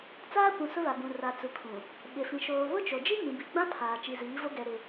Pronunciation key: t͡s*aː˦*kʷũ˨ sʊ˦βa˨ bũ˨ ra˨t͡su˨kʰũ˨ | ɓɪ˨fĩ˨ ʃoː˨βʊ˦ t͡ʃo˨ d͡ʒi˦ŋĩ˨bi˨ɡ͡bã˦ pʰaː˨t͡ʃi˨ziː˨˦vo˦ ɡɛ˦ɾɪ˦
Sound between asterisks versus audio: correct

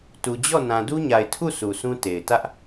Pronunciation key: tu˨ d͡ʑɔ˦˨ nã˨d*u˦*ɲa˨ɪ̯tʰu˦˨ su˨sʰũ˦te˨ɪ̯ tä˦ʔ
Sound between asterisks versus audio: correct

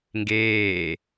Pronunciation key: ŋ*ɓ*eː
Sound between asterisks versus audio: incorrect: ɡ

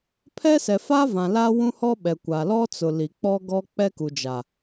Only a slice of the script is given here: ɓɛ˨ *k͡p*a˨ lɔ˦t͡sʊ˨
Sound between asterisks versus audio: incorrect: kʷ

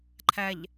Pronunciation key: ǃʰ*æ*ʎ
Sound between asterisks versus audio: correct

